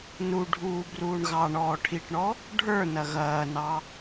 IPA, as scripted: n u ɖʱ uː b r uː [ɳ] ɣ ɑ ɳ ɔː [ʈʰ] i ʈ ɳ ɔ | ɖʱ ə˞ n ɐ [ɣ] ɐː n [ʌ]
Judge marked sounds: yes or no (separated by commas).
yes, yes, yes, no